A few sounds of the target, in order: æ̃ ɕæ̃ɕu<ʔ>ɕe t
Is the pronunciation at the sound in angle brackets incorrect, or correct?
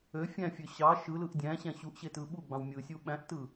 correct